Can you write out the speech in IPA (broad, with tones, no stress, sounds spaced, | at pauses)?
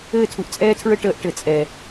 ɘː˦˨ tʰ u˨ ʔ t͡sʼ ɛː˦ tʰ ɹ ə˦ ʈ əː˦ ʔ ʈ ɘ˨ t͡sʼ ɛ˨